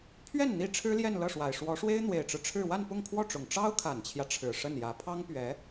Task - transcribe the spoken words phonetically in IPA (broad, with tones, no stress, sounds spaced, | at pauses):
pʰ ɥ ɛ˥˩ n n̪ i˥ ʈ͡ʂʰ ɻ̩˥ l j ɛ˥˧ n l ɤ˥˩ ʂ w a˨˩ ɪ̯ ʂ w ɔ˧˥ ʂ w e˥ ɪ̯ n̪ w e˨˩ ɪ̯ ʈ͡ʂ ɻ̩˦ ʈ͡ʂʰ ɻ̩˥˧ w a˥˧ n p ʊ˥˧ ŋ kʰ w ɔ˥˩ ʈ͡ʂ ʊ˨˩ ŋ ʈ͡ʂ ɑ˥ ʊ̯ kʰ a˨˩ n t͡ɕʰ j ä˦ ʈ͡ʂʰ ɻ̩˨˩ ʂ ə˥˩ n j ä˧˥ pʰ ɑ˥ ŋ p ɥ ɛ˧˥